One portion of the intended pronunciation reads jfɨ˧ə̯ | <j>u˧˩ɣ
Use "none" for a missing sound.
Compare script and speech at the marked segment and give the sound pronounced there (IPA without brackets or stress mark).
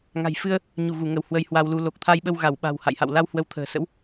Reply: ɲ